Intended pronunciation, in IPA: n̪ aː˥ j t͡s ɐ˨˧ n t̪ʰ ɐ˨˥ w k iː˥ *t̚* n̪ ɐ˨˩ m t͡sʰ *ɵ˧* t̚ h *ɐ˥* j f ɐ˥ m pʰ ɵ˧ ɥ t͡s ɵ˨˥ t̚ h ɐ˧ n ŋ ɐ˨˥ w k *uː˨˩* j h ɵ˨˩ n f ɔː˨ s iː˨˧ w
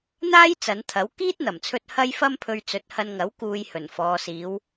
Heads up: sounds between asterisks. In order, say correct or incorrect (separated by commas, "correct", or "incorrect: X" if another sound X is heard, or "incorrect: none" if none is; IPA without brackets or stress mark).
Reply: correct, correct, correct, incorrect: uː˨